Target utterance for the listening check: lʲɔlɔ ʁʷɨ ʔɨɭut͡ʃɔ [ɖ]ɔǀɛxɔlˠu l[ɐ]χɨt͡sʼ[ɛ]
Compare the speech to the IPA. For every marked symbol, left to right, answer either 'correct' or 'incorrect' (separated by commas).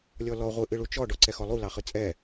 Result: correct, incorrect, correct